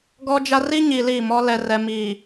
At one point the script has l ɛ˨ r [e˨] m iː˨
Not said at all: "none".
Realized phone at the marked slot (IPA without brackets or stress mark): ɛ˨